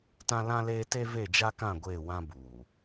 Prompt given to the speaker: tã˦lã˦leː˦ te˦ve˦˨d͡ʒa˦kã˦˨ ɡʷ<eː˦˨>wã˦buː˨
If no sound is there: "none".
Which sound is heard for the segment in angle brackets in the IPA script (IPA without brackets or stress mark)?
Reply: eː˦˨